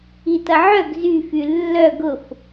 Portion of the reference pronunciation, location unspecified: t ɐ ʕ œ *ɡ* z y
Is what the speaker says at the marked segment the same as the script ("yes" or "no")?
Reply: yes